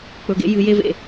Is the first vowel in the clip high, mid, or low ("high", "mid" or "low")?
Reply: mid